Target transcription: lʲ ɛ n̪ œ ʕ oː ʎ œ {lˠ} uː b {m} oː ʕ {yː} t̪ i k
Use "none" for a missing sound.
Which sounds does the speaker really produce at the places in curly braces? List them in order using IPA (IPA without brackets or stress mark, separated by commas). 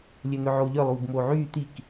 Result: lˠ, m, yː